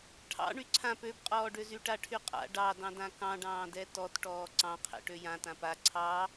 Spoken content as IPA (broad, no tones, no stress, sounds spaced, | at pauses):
ʈʰ ɑ̰ ɳ y ǀʰ ã p ø b qʼ ɔː ɖ ø z y ʈ a ʈʰ y qʼ a̰ ɖ ɑ d ɑ̃ d ã k ɑ̃ ɖ ɑ̃ː d ɛ t ɔ t ʈ ɔː ǀ ɑ̃ qʰ ɛ̰ ʈ ø j ã t ã p a ǀʰ ɑ